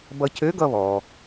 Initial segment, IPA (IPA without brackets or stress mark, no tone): b